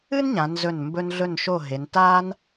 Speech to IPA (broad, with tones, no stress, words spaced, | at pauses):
ɨ˥n ɲã˩˧ nzɵ˧˩n mbɵ˧nɮɵ˧˩nʃo˧˩ ɦe˩˧n ta˧n